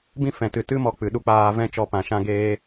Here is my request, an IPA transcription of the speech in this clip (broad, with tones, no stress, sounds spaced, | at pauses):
b ĩ˦ f ɛ̃˨ t ɨ˨ t ɨ˦ m ɔ˧ k͡p ɨ˨ ɗ u˧ k͡p aː˧ v ɛ̃˦ t͡ʃ ɔ˧ p ã˨ ʃ ã˦ ɡ eː˦